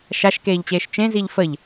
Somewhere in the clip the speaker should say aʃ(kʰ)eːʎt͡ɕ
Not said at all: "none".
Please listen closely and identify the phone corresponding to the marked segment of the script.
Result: k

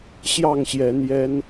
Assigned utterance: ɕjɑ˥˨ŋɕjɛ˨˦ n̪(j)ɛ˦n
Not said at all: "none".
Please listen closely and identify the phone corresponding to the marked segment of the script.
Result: j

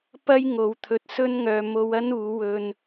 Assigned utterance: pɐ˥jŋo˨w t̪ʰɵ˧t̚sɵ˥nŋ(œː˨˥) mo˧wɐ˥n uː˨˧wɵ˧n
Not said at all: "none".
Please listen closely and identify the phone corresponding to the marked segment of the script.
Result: œː˧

